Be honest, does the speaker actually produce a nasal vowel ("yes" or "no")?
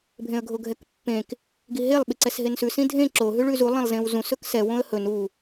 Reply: yes